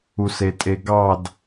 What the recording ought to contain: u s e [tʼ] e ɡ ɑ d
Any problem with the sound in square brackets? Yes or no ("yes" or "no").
no